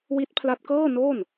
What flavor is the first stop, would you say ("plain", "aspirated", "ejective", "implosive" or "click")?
plain